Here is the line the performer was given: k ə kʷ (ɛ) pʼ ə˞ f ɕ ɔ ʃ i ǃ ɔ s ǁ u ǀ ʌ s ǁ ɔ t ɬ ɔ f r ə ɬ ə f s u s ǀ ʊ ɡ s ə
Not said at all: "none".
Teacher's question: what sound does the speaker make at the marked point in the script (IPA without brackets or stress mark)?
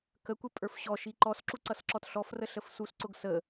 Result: ɛ